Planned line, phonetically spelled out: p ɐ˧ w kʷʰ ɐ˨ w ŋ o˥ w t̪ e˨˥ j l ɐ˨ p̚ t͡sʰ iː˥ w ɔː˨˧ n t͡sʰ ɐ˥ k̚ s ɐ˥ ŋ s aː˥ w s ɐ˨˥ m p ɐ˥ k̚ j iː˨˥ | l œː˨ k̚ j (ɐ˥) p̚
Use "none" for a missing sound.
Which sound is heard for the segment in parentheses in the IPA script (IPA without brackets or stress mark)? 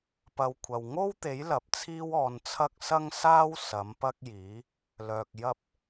ɐ˥